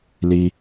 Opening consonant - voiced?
yes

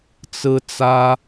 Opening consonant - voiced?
no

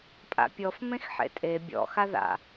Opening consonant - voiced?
no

